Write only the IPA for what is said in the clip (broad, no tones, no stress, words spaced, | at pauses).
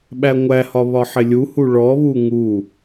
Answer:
ɓæŋʷæhɒ βɒħɪlʲuhu ɭɔβu ŋu